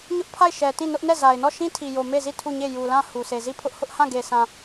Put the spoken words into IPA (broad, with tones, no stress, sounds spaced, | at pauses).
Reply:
ɲ ʊ˦ ʔ pʰ a˦˨ ɪ̯ ʃ ɛ˨ t ĩ˦˨ n ʊ˦ ʔ n ɛ˦˨ z a˨ ɪ̯ n ɔ˦˨ ʃ ĩ˦ tʰ i˨ j o˨ m e˦˨ z i˦˨ tʰ u˦˨ ɲ e˦˨ j u˨ l ã˦˨ h u˨ s e˨ z i˦˨ pʰ ʊ˦ ʔ h ʊ˦ ʔ h ã˦˨ ɡ e˨ sʰ ã˨